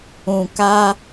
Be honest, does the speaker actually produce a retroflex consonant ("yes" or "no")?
no